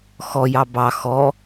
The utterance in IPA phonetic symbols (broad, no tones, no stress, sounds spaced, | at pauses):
x ɔ j ɑ b ɑ x ɔ